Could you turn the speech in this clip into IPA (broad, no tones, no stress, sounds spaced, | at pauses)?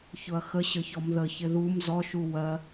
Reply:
ç ʊ ɐ̯ x ə ɕ ə ç ɔ m ð ə ç ɪ ð u m z ɔ ʃ u w ɜ